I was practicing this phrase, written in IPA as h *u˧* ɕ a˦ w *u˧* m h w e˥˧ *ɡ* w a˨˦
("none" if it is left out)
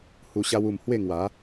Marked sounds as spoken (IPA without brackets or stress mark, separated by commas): u˧, u˧, ŋ